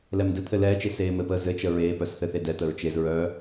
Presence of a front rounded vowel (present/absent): present